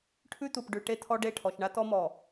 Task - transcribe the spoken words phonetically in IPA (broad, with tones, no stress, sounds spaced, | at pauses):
ʈʰ ʉ˦ t̪ u˨ p ɖ ʉ˨ ʈ e˦ t̪ʰ ɔ˦ ɖ e˦˨ ʈʰ ɔ˨ ʃ ɳ a˦ t̪ ɔ˦ m ɔ˨